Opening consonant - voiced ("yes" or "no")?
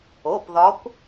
no